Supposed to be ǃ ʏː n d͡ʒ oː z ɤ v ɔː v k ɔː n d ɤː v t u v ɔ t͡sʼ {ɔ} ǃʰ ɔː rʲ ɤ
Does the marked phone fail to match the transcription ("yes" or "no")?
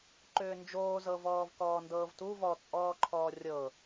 yes